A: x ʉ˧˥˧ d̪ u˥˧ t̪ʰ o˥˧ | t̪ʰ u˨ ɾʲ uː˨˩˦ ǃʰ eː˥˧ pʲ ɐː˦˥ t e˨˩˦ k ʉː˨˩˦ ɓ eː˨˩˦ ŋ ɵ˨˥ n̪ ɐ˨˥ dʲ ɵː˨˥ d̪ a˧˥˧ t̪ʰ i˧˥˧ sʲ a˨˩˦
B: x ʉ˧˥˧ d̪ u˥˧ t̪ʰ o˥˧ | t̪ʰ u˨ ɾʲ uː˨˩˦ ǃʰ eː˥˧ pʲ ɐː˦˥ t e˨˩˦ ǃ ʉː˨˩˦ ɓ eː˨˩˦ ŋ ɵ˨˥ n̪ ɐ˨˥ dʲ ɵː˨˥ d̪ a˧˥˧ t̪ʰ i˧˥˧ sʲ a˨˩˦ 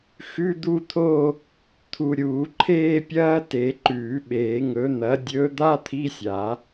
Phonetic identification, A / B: B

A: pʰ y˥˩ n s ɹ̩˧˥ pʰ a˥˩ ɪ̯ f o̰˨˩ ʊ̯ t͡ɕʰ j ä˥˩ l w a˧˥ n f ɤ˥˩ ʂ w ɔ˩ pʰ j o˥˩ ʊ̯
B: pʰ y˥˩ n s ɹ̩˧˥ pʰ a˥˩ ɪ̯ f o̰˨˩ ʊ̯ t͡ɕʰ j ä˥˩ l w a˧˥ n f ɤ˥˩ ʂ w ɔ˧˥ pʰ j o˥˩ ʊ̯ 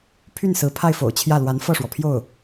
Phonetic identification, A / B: A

